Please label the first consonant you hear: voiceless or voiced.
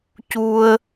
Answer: voiceless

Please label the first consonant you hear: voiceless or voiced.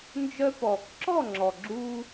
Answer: voiced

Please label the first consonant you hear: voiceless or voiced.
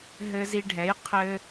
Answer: voiced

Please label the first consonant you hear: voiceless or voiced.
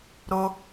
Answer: voiced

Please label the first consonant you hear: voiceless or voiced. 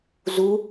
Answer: voiced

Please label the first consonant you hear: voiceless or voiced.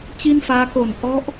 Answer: voiceless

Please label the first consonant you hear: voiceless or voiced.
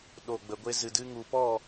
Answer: voiced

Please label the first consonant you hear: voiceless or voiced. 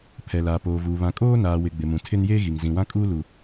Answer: voiceless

